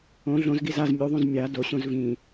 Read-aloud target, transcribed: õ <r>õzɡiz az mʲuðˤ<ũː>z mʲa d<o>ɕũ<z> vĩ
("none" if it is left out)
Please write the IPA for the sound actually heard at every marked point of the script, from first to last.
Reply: ɮ, ũ, o, z

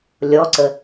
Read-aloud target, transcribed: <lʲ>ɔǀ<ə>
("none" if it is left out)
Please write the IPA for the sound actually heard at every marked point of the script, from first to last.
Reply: lʲ, ə

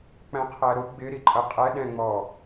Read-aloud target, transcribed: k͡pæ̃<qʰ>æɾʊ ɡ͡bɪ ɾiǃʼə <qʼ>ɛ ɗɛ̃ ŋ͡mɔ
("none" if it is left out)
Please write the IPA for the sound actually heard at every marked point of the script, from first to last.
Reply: qʰ, qʼ

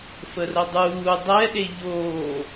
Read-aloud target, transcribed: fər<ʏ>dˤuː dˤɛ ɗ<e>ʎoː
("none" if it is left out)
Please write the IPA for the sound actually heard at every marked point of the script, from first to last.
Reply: ə, e

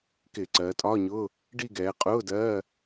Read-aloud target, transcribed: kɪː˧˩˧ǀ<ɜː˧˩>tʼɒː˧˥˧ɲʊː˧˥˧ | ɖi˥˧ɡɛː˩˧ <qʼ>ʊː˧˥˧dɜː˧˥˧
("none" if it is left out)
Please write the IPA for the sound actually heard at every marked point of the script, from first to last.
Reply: ɜː˩˧, qʼ

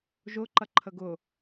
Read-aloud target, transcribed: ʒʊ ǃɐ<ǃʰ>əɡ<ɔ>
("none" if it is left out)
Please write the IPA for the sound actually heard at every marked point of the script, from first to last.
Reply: ǃʰ, ʊ

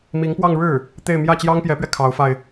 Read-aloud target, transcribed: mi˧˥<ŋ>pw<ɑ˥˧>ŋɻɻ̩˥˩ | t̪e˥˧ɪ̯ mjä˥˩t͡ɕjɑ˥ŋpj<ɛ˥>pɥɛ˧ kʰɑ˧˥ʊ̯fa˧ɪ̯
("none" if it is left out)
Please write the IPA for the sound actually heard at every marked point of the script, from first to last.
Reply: ŋ, ɑ˥˧, ɛ˧˥

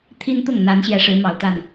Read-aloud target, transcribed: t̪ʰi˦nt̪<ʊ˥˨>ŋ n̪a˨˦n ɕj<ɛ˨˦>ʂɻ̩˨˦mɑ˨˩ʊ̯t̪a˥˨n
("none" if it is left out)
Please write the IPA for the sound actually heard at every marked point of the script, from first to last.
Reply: ʊ˥˨, ɛ˨˦

